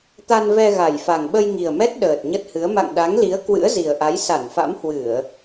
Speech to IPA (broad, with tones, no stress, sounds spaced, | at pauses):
t̪ a˧ n v ɛ˧ ɣ a˨˩ j f a˨˩ ŋ ɓ ə˧ j ŋ i˨˩ ə̯ m ɛ˦˥ t̚ ɗ əː˨˩ t̚ ɲ ə˦˥ t̚ h ɨ˨˦ ə̯ m a̰˧˨ ŋ ɗ a˨˦ ŋ l i˨˦ ə̯ k w ɨ̰˧˥ ə̯ z i˨˩ ə̯ ʔ a˨˦ j s a˧˩ n f a̰˧˥ m h w ɨ˧˩˨ ə̯